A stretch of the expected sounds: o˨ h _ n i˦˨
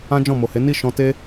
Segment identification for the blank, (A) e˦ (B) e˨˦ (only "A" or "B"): B